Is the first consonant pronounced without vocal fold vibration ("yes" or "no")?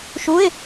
yes